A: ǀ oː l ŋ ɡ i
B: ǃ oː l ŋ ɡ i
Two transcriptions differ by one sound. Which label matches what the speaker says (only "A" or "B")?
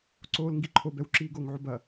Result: A